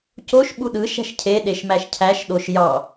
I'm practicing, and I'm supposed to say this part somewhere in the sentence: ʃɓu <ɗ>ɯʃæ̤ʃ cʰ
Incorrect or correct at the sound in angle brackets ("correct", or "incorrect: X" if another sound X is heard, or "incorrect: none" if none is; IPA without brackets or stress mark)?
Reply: correct